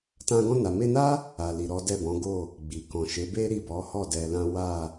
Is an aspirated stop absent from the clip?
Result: yes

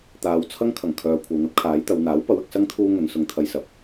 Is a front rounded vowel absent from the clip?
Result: no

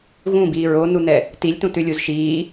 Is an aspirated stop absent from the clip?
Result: yes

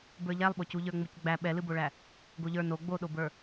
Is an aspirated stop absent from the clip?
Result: yes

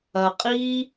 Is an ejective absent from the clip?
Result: no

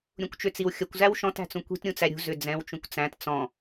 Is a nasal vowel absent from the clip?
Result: no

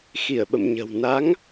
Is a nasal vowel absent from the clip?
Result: yes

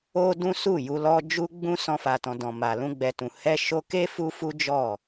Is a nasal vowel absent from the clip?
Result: no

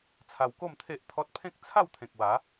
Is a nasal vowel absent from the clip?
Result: no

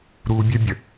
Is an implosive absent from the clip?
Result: yes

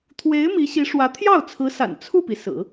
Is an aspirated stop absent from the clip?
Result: no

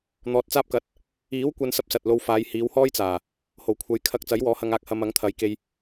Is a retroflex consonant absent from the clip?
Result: yes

